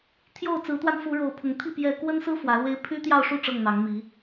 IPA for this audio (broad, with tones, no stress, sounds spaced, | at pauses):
t̪ʰ j o˥˨ ʊ̯ t͡s ɹ̩˨˦ t̪ w a˧ n f u˨˦ ɻ o˨˩ ʊ̯ pʰ ʊ˨˦ ŋ t̪ʰ i˥˨ p j ɛ˥˨ k w ə˦ n s ɹ̩˦ f w ä˨˦ l w e˦ ɪ̯ pʰ y˦ t̪ j ɑ˥˨ ʊ̯ ʂ u˥˨ ʈ͡ʂ ɤ˥˨ ŋ n̪ ɑ˨˦ ŋ m i˨˦